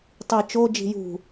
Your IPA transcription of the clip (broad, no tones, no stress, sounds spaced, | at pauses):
tˤ i t͡ʃ o d͡ʒ i̤ j ṳ